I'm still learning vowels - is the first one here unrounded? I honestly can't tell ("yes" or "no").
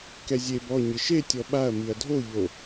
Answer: yes